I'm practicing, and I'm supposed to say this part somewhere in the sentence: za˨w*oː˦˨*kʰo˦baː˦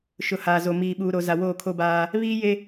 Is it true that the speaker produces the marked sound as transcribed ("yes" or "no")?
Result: yes